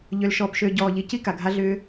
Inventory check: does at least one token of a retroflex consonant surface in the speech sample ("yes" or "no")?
no